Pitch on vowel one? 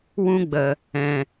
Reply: high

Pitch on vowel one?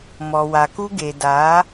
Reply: low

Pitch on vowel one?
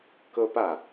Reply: high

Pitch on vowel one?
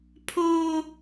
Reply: high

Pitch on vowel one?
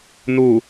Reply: low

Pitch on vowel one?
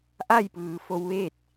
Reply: falling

